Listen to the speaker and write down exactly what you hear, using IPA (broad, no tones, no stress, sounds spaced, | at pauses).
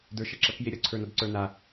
d ə˞ ʃ ʌ ǁ ɐ k j e ɾʲ ʌ ǀʰ ə˞ n ʌ d ǀ ə˞ n a